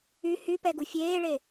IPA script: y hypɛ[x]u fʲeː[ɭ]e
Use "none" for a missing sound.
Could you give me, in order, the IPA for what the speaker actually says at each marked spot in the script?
ɡ, ɭ

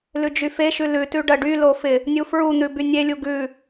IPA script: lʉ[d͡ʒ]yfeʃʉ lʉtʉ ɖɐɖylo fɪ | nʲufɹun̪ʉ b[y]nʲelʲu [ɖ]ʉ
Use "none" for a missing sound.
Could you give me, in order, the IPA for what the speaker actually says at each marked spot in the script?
d͡ʒ, y, ɡ

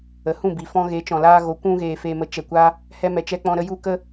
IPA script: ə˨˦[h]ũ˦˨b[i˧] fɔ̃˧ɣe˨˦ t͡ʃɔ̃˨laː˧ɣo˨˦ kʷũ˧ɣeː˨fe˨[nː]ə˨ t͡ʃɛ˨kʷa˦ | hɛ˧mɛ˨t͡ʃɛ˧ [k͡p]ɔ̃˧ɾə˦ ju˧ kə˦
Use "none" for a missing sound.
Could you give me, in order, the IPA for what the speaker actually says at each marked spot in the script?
h, i˨, m, k͡p

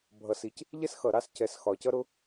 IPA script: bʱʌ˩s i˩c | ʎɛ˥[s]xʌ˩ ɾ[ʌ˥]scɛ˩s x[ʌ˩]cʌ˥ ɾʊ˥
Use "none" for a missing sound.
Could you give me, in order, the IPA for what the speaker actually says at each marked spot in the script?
s, ɑ˥, ɒ˩

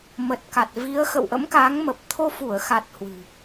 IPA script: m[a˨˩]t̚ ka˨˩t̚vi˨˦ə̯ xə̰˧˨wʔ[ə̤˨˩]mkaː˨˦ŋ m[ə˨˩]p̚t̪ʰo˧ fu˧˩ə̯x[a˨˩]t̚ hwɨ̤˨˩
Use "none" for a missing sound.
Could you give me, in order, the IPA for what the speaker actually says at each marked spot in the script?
ə˨˩, ə̰˧˥, ə˨˩, a˨˩

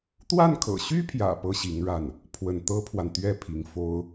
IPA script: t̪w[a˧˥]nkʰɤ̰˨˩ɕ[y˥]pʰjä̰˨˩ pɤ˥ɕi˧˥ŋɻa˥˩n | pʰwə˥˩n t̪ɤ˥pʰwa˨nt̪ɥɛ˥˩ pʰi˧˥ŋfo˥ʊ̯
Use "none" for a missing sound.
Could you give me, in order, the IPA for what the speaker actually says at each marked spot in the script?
a˥˩, y˥

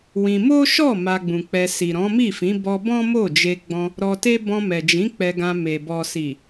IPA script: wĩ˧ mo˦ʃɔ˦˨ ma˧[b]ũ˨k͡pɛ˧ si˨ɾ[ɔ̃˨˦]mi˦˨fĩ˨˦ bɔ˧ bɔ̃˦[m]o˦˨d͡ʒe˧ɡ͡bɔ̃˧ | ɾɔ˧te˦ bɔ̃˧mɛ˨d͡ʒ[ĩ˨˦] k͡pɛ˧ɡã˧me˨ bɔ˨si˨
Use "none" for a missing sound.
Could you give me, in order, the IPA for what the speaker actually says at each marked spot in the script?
ɡ͡b, ɔ̃˨˦, m, ĩ˨˦

